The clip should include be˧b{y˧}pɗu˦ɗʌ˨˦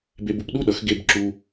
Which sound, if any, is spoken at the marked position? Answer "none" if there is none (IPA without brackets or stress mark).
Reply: u˧